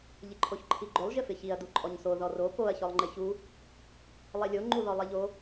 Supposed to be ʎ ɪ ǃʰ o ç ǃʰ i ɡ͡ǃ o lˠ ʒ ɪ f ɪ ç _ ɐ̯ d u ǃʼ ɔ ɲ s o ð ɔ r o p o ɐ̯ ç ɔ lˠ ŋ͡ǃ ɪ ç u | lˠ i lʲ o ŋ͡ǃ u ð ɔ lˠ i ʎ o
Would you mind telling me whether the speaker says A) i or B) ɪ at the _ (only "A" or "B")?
A